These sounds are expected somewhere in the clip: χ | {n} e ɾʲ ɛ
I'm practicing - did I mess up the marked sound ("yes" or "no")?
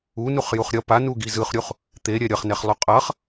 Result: yes